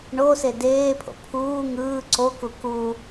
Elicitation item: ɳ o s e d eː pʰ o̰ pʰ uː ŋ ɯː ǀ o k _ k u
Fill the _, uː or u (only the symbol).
u